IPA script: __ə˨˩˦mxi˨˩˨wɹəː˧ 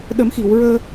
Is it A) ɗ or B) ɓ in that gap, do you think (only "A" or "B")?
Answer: A